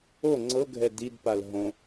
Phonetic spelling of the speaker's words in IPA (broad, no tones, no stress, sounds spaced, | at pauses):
o ŋ͡ǀ ɤ ɡʱ ɛ d i d p a l ɦ õ